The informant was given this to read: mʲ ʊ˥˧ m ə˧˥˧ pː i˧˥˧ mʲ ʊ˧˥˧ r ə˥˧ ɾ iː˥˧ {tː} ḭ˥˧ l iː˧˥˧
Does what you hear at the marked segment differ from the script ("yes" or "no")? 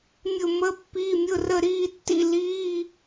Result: no